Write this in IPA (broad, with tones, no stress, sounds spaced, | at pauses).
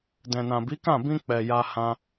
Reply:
d ɛ̃˨ n ã˨ b i˨˦ k ã˦˨ b ĩ˧ k͡p ɛ˨ j a˧ h ã˧